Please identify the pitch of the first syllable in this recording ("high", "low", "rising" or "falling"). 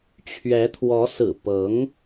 rising